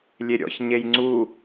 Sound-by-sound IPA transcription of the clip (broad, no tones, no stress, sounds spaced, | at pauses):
lʲ e ɾʲ ɔ̰ ç ɲ e j ŋ͡ǀ u